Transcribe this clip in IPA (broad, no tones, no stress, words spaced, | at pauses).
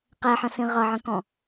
qɛħə̃sĩ ʁʌʕə̃kɔ̃